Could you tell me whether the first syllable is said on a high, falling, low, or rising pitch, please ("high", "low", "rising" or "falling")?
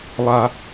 high